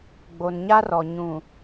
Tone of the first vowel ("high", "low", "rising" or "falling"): low